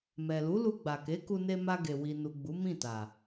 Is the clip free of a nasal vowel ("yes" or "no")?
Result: no